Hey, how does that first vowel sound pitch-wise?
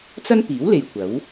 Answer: high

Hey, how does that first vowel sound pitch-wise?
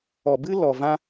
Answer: low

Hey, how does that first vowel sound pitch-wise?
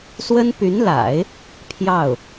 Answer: high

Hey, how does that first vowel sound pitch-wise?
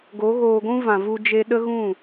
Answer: rising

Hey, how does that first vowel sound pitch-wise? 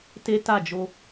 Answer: high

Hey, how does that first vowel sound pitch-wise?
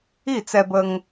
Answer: falling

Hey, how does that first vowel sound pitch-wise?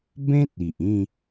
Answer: high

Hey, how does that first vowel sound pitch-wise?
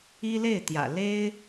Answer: high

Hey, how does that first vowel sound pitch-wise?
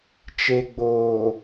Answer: low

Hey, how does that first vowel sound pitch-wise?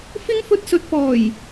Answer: high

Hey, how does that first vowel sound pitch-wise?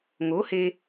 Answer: rising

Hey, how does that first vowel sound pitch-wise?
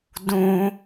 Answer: low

